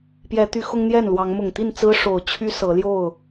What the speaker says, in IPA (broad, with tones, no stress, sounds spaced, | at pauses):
p j ɛ˨˦ t̪ y˨˦ x ʊ˦ ŋ n̪ j ɛ˥˨ n l w ɑ˨˦ ŋ m ʊ˨˩ ŋ t̪ i˥˨ n t͡s ɹ̩˦ ʂ o˨˩ ʊ̯ t͡ɕʰ y˦ s ɤ˨˦ l j o˥˨ ʊ̯